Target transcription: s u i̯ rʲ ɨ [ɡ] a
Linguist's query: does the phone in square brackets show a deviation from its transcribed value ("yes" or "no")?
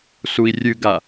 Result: no